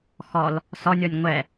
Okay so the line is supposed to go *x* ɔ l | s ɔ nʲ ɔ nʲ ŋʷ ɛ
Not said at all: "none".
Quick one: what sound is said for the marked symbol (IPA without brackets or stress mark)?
x